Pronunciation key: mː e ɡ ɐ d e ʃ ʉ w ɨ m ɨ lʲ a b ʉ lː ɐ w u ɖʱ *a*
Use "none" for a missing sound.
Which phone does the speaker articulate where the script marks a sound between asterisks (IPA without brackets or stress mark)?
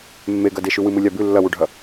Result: ɐ